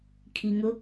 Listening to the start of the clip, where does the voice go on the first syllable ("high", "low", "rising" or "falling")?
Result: low